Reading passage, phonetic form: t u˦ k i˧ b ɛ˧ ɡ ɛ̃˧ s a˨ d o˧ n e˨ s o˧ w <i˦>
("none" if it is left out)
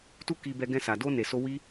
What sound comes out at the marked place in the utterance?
i˦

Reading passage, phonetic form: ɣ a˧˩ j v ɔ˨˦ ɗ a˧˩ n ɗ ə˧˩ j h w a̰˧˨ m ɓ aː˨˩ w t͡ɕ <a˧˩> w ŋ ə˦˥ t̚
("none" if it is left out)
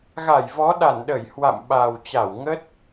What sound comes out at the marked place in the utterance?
a˧˩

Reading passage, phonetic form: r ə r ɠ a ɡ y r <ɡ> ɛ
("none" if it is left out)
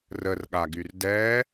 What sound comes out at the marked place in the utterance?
d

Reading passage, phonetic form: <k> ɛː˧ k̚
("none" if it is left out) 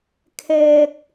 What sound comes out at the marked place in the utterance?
kʰ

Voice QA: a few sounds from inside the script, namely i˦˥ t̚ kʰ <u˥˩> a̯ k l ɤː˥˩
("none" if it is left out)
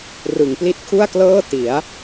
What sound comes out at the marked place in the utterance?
u˥˩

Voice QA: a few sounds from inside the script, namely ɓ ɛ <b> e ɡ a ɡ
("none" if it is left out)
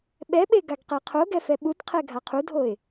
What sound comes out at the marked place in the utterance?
ɓ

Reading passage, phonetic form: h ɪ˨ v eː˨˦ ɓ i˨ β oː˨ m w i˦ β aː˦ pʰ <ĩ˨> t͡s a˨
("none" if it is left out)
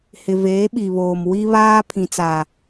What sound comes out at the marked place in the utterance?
ĩ˨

